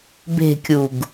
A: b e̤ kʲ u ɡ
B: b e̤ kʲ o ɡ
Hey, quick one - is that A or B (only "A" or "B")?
A